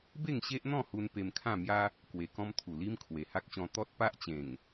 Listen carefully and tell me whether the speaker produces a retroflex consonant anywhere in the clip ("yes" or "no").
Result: no